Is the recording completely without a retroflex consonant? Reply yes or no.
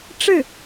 no